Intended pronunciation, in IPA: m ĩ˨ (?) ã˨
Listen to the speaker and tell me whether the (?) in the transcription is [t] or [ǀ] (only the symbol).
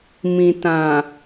t